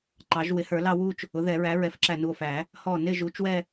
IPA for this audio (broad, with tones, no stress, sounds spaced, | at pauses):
ǃ ɑ˨˩˦ ʒ w ɪ˩˥ h ə˞˨˩˦ l ɑ˥˧ w u˥˧ t͡ʃ | ʊ˩˥ ð ɛ˨˩˦ ɹ æ˩˥ ɹ ɛ˨˩˦ f ǁ æ˧˩ n u˧˩ o̯ f æ˨˩˦ | h ɔ˧˩ n ɪ˥˧ ʒ u˩˥ t͡ʃ w ɛ˥˧